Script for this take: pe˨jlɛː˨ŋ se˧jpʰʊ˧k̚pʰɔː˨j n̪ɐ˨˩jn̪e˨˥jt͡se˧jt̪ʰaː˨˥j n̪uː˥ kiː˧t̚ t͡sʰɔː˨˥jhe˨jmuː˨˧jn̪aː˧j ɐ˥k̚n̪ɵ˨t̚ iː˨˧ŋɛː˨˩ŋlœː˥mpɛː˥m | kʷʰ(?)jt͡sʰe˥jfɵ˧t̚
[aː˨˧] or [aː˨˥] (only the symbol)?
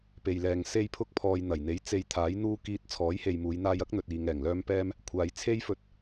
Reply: aː˨˧